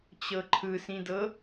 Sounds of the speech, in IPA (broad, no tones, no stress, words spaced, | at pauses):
t͡ɕɤǃʰɯsĩdɤ